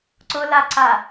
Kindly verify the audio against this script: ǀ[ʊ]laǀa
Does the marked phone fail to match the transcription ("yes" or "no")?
no